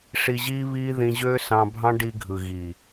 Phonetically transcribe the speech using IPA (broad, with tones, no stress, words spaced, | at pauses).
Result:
ʂi˧ʑiː˦βiː˦ ðĩ˧ʑøː˦sɑ̃˧bʱɑ̃˦ ɖi˧ɡʱɯ˨ɣiː˨